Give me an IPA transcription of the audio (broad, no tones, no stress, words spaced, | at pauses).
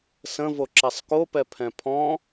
sə̃voǁɛsˤ kopɛpʰɛ̃ pʰɔ̃